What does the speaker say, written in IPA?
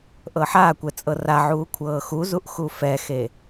ʔ ɤ ħ a kʷ ɛ t͡sʼ ɤ r a ʕ uː kʷʰ ɤː x u z u ʔ x u f ɛ x e

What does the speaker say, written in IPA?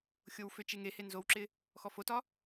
xʲ o w f ʏ t͡ʃ e ŋ e h e n z o w ǁ ɪ | x ɔ f o t ɒ

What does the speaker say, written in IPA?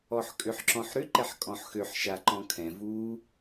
ɔ ħ kʼ ʏ ħ ǁ ɔ̃ ħ ɾ ʏ ǃ ɛ ħ kʼ ɔ̃ ħ x ø ħ ʃ a ǃ ɔ̃ kʰ ɛ̃ v u

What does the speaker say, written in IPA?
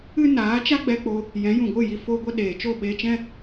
ɨ˦ n aː˨˦ t͡ʃ a˦ ɡ͡b ɛ˧ k͡p o˧ | j ɛ̃˨˦ j ũ˨ ɡʷ ɨ˦˨ j i˧ f o˧ ɡʷ ə˧ ɗ eː˨ t͡ʃ o˦˨ ɓ e˧ t͡ʃ ɛ̃˦

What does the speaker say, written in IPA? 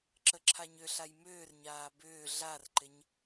ǁ ə ǁʰ a ɲ ʏ ɬ a j m ʏː r ɲ aː b ʏː ɮ a r ǃ ɪ ɲ

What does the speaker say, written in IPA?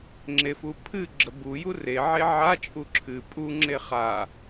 ŋ͡ǁ e f u pʰ ɨ ɡ͡ǁ ə b u j u r e ʕ e ʕ a t͡ʃʼ u ǁʰ ɨ pʼ u ŋ͡ǁ e χ a

